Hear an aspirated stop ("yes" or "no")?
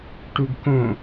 no